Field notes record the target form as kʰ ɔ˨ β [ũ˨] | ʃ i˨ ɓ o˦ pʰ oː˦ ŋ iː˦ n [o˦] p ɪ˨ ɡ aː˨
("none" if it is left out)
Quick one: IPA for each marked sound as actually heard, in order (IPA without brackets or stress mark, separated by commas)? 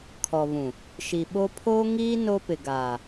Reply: ũ˨, o˦